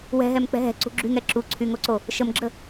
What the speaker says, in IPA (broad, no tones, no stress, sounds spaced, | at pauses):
w ɛ̤ ɦ ɛ m k͡p ɛ̤ ɦ ɛ̤ ǀ ṳ ɡ͡ǁ y ŋ ɛ ǁ u ǀʰ y ŋ o ǀ o | ʃ ə m ɡ͡ǁ ə